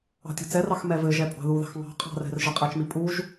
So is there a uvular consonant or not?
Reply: yes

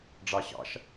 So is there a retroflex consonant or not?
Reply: yes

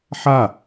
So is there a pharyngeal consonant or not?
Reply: yes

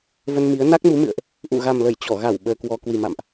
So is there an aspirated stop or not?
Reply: no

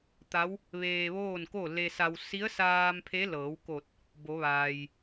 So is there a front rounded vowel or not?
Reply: no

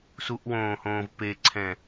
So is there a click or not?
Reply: yes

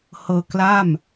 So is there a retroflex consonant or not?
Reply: no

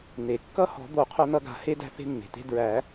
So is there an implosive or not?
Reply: no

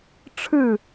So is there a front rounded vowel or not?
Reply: no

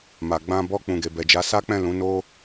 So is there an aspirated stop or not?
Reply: no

